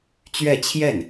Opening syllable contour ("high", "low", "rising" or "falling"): falling